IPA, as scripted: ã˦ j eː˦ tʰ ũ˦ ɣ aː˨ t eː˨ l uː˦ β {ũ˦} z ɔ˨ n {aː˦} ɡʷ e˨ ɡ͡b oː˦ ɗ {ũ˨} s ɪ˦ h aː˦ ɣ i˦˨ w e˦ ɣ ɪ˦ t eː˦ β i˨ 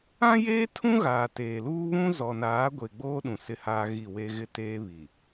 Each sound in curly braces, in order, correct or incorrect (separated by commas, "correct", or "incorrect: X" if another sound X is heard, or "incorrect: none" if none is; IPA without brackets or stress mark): correct, incorrect: aː˨˦, correct